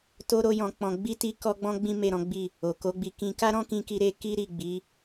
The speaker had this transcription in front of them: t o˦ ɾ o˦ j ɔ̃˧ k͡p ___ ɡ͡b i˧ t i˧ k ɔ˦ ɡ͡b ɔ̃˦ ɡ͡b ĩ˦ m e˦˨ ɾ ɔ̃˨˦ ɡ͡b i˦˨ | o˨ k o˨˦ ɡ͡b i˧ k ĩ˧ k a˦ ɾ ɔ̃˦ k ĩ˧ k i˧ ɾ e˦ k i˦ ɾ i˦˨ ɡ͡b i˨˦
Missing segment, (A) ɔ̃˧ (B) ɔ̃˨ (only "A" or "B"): A